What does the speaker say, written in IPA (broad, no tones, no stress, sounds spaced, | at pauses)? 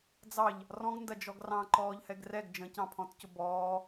d͡z ɑ ʎ | r ɔ̃ ɡ n d ɐ d͡ʒ ɔ ɡ r ɑ̃ ǃ ɔː ʎ h ɛ ɡ r ɛ ɡ d͡ʒ ə̃ c ɑ̃ pʰ ɔ̃ t c ʊ b ɔː